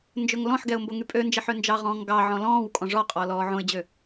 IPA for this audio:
nd͡ʒɵŋlɔ̃ħɡɛʊ̯ mboŋypʼønd͡ʒeħ ønd͡ʒɑʁɔ̃ːŋ ɡɑ ʕɔ̃lɔ̃ːwkʼɔ̃ ʐɔqʼɔ lɔːʕõɪ̯d͡ʑø

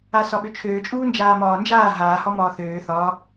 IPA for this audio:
asɒɓøt͡ʃʰøː t͡ʃʼuːnd͡ʒaːmɒːnd͡ʒaː ɦaː hɒmɒːθøː θɒ

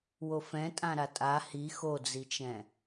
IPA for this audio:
wofɛ̃tʼã ɾatʼa hi xod͡zit͡ʃɛ̃

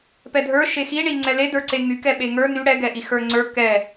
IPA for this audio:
pɛdʱə˞ ʃexiɳiŋ͡ǀɛ ledə˞ǀe ŋykɛ ɓeŋə˞ ny ɽɛɡɛʔi xə˞ŋ͡ǀə˞ kɛ

